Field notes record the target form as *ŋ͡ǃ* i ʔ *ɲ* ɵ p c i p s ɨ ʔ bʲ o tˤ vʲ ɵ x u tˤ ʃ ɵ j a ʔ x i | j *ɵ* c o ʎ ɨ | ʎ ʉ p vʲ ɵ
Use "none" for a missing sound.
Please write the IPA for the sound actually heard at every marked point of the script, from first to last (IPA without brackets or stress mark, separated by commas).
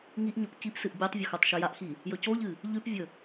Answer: ŋ, ɲ, ɵ